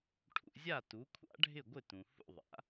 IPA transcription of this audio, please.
ʈʰṵ˧zʲa˥˩ tu˩˥kʷʰa̰˥ɖʱɪ˥˩ɡʷɪ˥˩ tũ˩ hṵ˥˩ðˤa̰˩˥

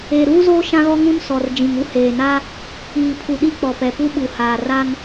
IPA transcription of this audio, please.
eː˨ɾuː˦zoː˦ ʃã˦ɣɔ˦ŋũ˦n sɔ˨r d͡ʒĩ˨ŋ u˦heː˨na˦ | iː˨pʰu˨ ɗi˦k͡pɔ˨pɛ˨pu˦ ɓu˨haː˨ra˦ŋ

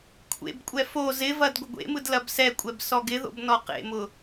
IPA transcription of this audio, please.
kʷʰḛbkʷʼɛ fo zɪvɐd ɡʷɪɡʷḛmɯd lɐbsɛkʷʼɛb sɔɡɪðo̰b nɔqḛmʊ

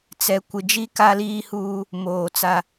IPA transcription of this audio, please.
t͡sɛ˨ kʷɪ˨d͡ʒi˦ ka˦liː˦huː˦ | moː˨t͡sa˦

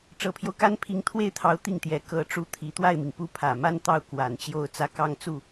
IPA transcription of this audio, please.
ʈ͡ʂɤ˨˩pʰjo˦ʊ̯ka˥n pʰi˧˥ŋt̪ʰwe˥˩ɪ̯t̪ʰɑ˧˥ʊ̯ t̪i˥˩ŋt̪jɛ˧˥ kɤ˧˥ʈ͡ʂu˧˥ t̪ʰi˨˩ t̪wa˥˩ɪ̯mi˩ŋ pu˥˩pʰä˨˩ ma˥n t̪ɑ˥˩ʊ̯ kwa˨˩nt͡ɕjo˥˩ʊ̯ t͡sä˥kɑ˥ŋt͡su˥˩

